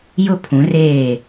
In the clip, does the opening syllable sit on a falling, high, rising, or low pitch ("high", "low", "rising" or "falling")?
high